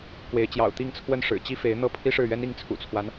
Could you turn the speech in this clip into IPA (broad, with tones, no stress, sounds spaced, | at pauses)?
k w e˧˥ ɪ̯ t͡ɕ j ɑ̰˨˩ ʊ̯ t̪ i˥˧ ŋ t͡sʰ w ə˥˩ n ʂ ɻ̩˨˩ t͡ɕ i˥ f e˧˥ ɪ̯ n̪ ɤ˥˩ pʰ i˥ ʂ ɻ̩˥˩ ɥ ɛ˥ n i˥˩ ŋ t͡sʰ ṵ˨˩ t͡sʰ w a˦ n